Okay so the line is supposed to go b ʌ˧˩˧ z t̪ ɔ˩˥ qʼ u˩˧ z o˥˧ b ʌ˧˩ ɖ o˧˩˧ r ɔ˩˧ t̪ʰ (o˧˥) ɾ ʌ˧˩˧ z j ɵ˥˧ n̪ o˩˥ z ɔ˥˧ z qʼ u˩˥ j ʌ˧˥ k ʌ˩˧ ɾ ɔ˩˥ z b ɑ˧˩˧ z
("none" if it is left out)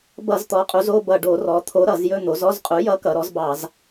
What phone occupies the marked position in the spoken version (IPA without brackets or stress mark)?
o˧˥